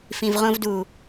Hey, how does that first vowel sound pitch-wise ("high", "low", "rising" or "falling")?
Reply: low